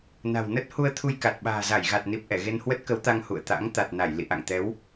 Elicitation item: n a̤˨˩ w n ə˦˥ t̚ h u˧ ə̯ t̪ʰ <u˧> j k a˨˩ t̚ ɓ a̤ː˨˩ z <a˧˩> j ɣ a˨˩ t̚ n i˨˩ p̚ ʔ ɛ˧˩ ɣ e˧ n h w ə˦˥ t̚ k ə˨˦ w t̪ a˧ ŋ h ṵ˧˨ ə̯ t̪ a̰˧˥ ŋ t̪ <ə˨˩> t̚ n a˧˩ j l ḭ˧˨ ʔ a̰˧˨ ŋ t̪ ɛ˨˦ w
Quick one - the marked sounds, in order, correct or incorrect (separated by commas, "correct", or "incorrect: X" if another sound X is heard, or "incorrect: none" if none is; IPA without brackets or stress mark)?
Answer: correct, correct, incorrect: a˨˩